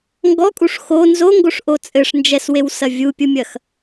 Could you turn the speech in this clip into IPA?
ŋ ɡ ɔ kʼ u ʂ x o n z o ŋ ɡ o ʂ ʔ o t͡sʼ ɘ ʂ n d͡ʒ ɛ s w e w s ɐ vʲ u pʲ u mʲ ɐ x

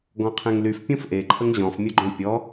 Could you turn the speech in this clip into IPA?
ɡ ɔ̃ qʰ ẽ ŋ l y f pʲ õ f ʔ e ǃʰ ə ŋ ʑ ɔ̃ f mʲ ʊ ɡ͡ǃ õ pʲ ɔ

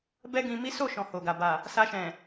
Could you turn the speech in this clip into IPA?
b ɛ˦ ɡ ĩ˧ m i˦ s o˦˨ ʃ ɔ̃˨ h o˨ ɡ a˨ b a˨ | s a˧ ʃ ɛ̃˨

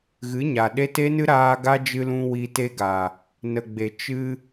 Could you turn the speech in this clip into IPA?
ɣ ɨ˨˦ ɲ a˨ ɗ e˦ t e˦ n ɨ˦ ɾ aː˧ ɡ a˦ d͡ʒ ɨ˧ l ũ˧ w i˧ t e˦ ɡ a˨ | n ə˨ ɡ͡b e˨ t͡ʃ ɨ˦

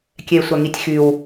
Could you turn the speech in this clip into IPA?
kʲ ɛ e̯ sʷ a ŋ i tʲ x y w

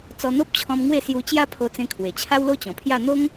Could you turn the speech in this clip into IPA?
t͡s ɔ˧ n̪ o˦ p̚ t͡ɕʰ ɔ̃˧ m ŋ w e˥˧ s j u˧ t͡ɕ j a˦ pʰ o˧ t͡s ẽ˧ kʰ w e˨˩ t͡ɕʰ a˦ w l o˦ t͡ɕ ɔ̃˨˩ pʰ j a˥˧ n̪ o˦ ŋ

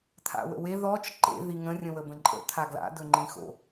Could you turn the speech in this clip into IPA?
t̪ʰ a̰ w ə̰ w e ð ɔ t͡ʃ ǃ ḛ ð i ŋ ə̃ rʲ ə̃ w ə b ə̃ ǃʼ ə̰ t̪ʰ a ɡ l a̰ d ɵ ŋ͡ǃ ĩ x o̰

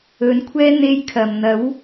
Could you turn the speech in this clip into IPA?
ɵ˨˥ n kʷʰ ɛː˥ n̪ e˥ j kʰ ɐ˨ m n̪ ɐ˨˥ w

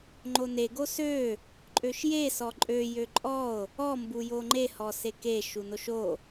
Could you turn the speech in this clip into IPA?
ŋ͡ǃ o n e ɡ o s ø | ǃʼ ø ʃ j e s ɔ ǃʼ ø j ø ǃʼ ɔ o̯ | ɔ m b u j o ŋ͡ǃ e h ɔ s e k e ʃ u n o ʃ o

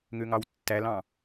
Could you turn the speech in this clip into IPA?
ŋ ø ŋ ɑ w tː æ l ɑ̃

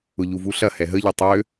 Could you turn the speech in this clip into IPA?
ʊ ʎ u v u ɬ ɐ h ɛ ɦ ə ʎ i tˤ ø

